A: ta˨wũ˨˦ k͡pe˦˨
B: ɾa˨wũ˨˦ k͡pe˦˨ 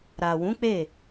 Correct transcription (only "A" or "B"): B